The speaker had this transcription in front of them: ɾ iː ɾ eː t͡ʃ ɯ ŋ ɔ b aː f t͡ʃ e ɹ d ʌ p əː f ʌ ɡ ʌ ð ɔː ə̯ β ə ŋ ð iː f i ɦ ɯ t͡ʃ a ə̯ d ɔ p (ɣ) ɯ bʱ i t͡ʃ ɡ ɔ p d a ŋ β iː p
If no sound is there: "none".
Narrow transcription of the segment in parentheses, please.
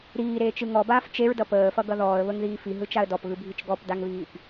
ɣ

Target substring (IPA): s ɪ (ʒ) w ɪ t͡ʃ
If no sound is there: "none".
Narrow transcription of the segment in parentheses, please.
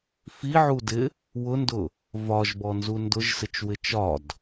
t͡ʃ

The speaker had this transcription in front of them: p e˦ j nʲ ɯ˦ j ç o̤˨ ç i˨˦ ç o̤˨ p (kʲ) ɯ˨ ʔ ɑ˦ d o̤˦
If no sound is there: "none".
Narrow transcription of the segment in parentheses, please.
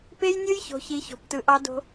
t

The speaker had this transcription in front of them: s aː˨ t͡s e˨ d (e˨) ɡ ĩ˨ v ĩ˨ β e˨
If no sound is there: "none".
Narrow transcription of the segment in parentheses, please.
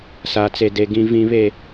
e˨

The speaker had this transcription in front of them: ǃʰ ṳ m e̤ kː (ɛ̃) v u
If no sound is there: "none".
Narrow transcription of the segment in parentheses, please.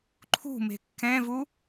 ɛ̃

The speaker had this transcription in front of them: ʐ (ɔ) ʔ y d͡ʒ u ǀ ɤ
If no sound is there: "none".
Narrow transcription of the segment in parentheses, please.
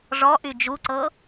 ɔ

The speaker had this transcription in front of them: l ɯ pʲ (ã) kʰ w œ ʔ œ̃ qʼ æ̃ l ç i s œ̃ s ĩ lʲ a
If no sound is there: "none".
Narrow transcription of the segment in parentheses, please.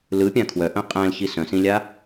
ã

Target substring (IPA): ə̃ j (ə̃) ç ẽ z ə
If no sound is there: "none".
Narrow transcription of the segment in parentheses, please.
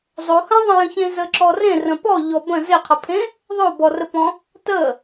ə̃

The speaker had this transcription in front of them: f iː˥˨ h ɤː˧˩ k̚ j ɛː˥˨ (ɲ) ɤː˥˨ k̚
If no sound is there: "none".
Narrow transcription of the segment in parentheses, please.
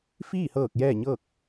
ɲ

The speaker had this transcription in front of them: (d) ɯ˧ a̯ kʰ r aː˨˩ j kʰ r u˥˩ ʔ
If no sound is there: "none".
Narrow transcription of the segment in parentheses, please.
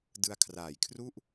d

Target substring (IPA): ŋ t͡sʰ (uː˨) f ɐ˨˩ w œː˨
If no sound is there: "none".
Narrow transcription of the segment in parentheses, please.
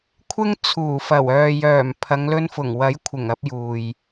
uː˨˩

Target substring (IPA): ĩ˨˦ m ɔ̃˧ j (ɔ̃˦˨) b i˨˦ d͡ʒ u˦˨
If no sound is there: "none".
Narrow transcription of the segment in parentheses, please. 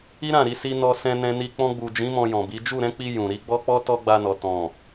ɔ̃˨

